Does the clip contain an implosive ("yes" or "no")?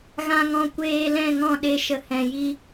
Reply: yes